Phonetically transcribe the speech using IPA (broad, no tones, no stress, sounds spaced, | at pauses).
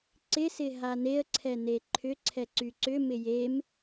ǀ ɪ s ɪ ɦ a n e ə̯ ǀʰ ɛ n e ǃʰ ʏ ǀʰ ɛ ǀ y ǀ ʏ m ɪ j e m